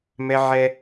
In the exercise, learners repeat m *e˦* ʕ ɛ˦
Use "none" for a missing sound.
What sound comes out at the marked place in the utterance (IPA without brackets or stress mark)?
ɛ˦